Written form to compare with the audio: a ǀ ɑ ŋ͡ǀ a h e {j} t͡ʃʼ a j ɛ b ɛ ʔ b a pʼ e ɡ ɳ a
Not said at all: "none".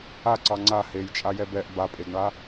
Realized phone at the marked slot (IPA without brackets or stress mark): j